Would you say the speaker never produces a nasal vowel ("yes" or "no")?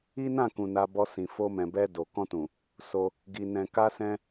no